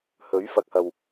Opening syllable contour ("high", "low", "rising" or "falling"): rising